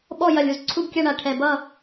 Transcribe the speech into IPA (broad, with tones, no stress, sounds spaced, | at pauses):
ɓ ɔ˦˨ j ɐ˨˩ lʲ u˨˩ z ǀʰ u˦˨ b kʲ a˦˨ ɳ a˨˩ ʈʰ ɛ˨˩ b ʌ˦˨